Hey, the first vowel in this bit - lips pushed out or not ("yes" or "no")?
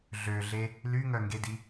yes